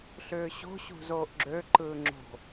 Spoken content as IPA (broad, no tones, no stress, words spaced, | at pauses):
ɬʏːɕo̤ ɕṳzoːʔɡ͡ǁø ǃɯːŋ͡ǁo̤